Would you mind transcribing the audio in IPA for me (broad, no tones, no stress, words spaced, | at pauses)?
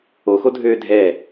oxodʱøː dʱɛ